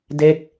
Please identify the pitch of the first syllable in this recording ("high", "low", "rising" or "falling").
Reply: falling